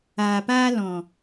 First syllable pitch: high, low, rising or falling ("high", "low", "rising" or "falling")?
low